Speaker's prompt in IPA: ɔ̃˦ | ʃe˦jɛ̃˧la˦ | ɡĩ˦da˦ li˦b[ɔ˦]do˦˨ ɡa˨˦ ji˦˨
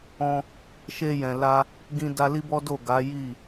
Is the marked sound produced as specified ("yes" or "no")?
yes